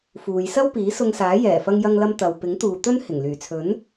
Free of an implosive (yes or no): yes